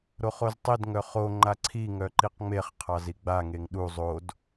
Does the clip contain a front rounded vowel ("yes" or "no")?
yes